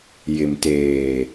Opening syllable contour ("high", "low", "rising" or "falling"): low